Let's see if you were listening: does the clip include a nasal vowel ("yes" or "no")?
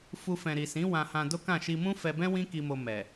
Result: yes